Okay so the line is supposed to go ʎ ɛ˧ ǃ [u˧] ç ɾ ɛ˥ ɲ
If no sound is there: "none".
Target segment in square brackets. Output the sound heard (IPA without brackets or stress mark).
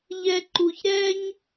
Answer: u˧